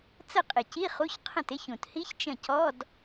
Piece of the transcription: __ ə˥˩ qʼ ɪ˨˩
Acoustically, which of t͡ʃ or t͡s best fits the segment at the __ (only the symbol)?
t͡s